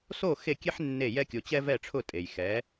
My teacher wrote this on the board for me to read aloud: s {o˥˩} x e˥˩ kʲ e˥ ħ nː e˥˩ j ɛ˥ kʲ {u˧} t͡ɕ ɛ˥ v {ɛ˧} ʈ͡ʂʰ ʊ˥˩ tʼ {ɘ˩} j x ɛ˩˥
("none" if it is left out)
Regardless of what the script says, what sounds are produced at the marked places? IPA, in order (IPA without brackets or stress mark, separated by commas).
o˥˩, o˧, ɛ˥˩, e˩